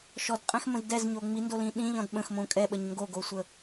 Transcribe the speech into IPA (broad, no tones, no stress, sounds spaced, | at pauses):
ʃ ɔ d qʼ ɛ̃ x m ə̃ z d ɛ z ɲ o ŋ͡m i n d o l ĩ ɗ ĩ ʎ ɔ̃ d ɓ ə̃ x m õ kʼ ɛ ɓ ə ɲ ŋ ɡ o ɡ o sʷ ə